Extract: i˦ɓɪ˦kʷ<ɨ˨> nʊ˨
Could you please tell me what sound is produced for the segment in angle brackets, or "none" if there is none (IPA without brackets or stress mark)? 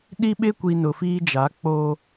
i˨